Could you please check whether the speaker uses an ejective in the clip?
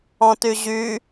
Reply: no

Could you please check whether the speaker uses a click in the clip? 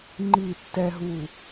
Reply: yes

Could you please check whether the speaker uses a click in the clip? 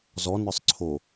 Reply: yes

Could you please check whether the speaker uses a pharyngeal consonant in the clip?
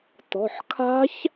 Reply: yes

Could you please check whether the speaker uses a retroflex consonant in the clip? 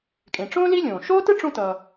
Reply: yes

